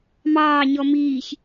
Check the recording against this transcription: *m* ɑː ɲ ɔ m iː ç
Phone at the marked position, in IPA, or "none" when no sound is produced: m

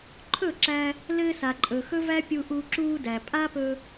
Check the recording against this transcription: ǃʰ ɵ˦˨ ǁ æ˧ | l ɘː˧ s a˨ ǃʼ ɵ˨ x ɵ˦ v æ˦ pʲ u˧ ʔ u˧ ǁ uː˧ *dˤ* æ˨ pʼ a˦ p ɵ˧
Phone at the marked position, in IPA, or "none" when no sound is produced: d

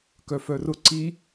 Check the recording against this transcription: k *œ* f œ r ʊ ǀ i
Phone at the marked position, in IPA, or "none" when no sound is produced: œ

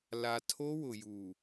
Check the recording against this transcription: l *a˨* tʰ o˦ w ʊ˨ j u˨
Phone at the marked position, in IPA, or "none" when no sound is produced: a˨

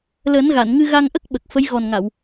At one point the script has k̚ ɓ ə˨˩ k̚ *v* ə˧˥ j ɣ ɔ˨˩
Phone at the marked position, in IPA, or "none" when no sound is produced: f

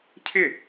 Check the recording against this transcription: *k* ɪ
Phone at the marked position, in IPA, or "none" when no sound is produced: cʰ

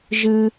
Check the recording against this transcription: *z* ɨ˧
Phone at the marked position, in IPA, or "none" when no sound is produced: ʒ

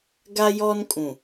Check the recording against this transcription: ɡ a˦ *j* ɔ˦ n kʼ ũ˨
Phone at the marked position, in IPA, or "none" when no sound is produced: j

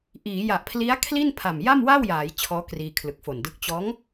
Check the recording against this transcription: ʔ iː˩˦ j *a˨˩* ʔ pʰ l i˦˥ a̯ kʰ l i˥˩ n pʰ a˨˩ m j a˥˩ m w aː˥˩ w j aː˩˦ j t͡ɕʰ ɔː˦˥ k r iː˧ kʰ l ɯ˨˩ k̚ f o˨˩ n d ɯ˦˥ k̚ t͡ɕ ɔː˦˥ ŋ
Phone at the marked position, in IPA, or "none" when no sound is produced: a˨˩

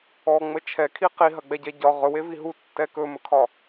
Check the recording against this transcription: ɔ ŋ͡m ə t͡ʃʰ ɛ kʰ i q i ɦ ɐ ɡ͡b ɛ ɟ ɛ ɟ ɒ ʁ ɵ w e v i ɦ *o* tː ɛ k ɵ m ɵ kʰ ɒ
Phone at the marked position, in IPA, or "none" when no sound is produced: u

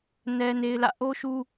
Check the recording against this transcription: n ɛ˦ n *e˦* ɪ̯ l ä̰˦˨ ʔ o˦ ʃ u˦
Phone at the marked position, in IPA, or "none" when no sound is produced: e˦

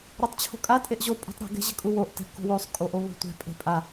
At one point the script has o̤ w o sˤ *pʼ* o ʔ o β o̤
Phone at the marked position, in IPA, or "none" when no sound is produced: kʼ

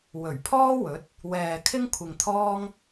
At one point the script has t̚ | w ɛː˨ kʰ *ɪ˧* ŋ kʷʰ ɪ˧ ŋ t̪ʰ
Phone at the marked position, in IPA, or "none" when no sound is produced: ɪ˥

